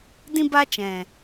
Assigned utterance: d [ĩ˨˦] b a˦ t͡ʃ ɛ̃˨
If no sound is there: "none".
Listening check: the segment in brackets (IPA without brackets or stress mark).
ĩ˦